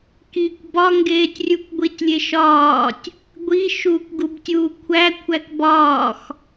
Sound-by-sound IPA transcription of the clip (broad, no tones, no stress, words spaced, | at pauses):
kikʷ bɒŋɡeːtʲrʲuk ɡʷitʲlʲeʃɒːtʲ | ɡʷi ʃuːkʷɡubtʲuːkʷʰæ kʷʰækbɒːx